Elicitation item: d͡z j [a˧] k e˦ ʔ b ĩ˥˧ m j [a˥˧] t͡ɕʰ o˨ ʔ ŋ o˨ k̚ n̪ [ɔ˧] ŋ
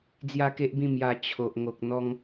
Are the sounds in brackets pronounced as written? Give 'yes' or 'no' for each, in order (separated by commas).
no, no, yes